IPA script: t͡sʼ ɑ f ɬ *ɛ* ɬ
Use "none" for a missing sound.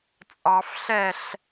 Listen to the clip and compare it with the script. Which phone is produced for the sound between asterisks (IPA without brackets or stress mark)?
ɛ